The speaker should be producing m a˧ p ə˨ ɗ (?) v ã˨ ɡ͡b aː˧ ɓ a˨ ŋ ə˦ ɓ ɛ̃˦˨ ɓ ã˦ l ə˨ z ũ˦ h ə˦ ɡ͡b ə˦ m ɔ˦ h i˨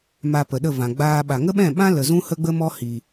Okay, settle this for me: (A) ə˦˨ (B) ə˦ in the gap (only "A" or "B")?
A